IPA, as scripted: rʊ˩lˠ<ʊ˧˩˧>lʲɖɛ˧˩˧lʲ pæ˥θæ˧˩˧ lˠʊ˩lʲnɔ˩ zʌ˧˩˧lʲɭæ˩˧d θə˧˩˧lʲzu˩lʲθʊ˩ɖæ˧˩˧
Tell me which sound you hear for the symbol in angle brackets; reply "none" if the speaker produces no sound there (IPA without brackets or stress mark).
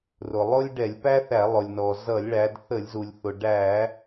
ʊ˥